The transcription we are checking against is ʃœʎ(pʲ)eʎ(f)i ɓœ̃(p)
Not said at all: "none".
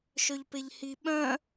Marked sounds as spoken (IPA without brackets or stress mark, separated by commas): p, h, none